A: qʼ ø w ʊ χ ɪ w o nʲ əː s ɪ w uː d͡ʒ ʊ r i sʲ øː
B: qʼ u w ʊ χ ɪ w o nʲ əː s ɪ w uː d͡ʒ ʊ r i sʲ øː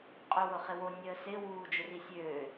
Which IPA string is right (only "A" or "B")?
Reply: A